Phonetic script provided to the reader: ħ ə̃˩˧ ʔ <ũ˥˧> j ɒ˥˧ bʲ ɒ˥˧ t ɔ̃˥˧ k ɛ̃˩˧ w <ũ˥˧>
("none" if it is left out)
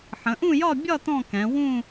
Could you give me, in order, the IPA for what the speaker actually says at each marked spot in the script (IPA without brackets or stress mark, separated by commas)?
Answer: ũ˥˧, ũ˥˧